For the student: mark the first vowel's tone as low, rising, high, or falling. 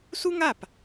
high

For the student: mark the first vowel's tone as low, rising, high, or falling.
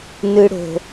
high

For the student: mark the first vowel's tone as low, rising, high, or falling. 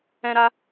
high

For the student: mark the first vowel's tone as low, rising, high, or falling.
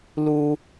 low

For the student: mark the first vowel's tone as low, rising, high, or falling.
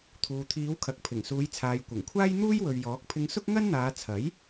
low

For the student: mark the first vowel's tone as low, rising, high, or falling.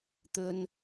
high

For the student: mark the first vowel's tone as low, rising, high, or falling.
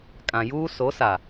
low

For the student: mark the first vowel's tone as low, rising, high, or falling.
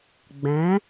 rising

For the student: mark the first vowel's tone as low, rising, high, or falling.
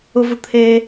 high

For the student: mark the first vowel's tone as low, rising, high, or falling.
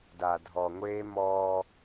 low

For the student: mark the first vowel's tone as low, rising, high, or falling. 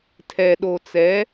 low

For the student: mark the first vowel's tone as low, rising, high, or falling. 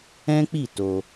high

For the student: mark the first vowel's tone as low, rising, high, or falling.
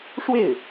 falling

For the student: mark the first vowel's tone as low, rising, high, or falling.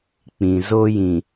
low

